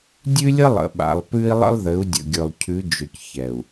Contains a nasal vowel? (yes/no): no